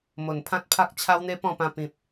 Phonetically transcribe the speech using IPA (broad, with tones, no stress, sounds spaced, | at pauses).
m o˨˩ n pʰ ã˦ t̚ pʰ a˦ k̚ t͡ɕʰ a˦ w n̪ e˦ p ɔ̃˥˧ p ã˧ p ĩ˨ p̚